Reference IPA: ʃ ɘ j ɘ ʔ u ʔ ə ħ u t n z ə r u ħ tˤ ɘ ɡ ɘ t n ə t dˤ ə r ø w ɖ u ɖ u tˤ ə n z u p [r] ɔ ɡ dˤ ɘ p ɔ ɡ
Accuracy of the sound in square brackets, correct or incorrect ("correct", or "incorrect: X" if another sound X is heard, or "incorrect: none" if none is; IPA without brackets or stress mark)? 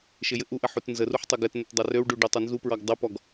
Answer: incorrect: ɹ